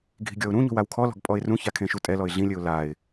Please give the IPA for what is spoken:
ɡʱi̤ɡʲɔʊ̯ɾũɲo̤w awkʰɔlɔ̤ɡ pʼɔɪ̯rũça kʰẽʃutʼɛlɔɪ̯ ɮĩlʲɘʊ̯ laɪ̯

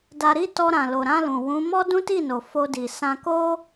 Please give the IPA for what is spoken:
da˧ɾi˦ tɔ˧ɾã˨lo˨ɾã˧ lũ˨ wũ˨˦ mɔ˦dũ˦ti˦˨no˨ fo˧di˨sã˧ ko˦

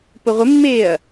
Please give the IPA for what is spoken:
pʊʁʷɪmːeːɐ̯

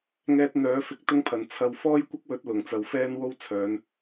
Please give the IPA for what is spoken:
ŋɛː˧t̚n̪œː˨˥ fɪ˧k̚t̪ʊ˥ŋpʰɐ˨˩n t͡sʰɐ˧w fɔː˥jkʷɐ˥k̚wɵ˨˥t̚ lʊ˨˩ŋt͡sɐ˨˧w fɛː˥nwo˥w t͡sʰœː˨˧n

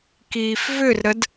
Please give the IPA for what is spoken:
kiːfvʏrɾəd

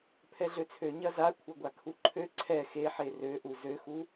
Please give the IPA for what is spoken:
pʰɛɮøt͡sʰø ɲɐza kʷʰɐɡʷakʰuǃʰø ǀʰɛ xeħe røʔu zøxu

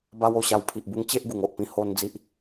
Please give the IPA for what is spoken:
ba˦wo˥˧ɕa˧w pʰi˨ʔbu˧ŋt͡ɕe˦ʔ ɡu˨˩ŋo˨ʔpĩ˧ ho˧n d͡zi˦ʔ

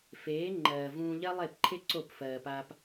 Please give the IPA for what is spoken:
feː˨˦ ŋ͡ǃɜː˨vũː˧ ʎɜ˦lˠe˦˨pǃʰe˦ ǀo˦˨pfɜː˨pa˧p

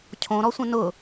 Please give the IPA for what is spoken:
cʰõɾɔsʷə̃ nʊ

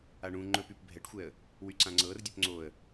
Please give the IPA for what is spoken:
aɳũ ŋ͡ǃɵpyp bʱɛʈxʷɛə̯ | wyǀãŋ͡ǀɤr dʲɵpŋ͡ǀoə̯

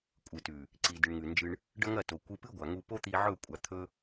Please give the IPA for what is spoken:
kʷʼɨ˨tʉ˨ | ǀi˨ dɨ˨ɳŋʉ˨nd͡ʒɨ˧ɳ | ɖɐ˦ŋɐ˦˨to˨ kʷɨ˧pɨ˦ɡʷa˨ŋu˧ po˦t̪i˧ʕɵ˦˨ kʷʼa˧ t̪ʰɵ˦

